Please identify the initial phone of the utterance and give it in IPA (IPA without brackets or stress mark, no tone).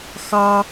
x